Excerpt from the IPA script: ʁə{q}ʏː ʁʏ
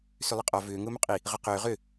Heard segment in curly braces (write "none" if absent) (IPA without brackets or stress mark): q